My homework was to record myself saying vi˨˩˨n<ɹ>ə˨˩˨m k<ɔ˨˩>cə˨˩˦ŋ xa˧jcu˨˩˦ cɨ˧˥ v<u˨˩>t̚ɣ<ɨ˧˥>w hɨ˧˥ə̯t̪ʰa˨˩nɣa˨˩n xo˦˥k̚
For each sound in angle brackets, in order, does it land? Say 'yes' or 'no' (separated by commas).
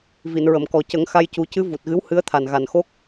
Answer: yes, yes, yes, yes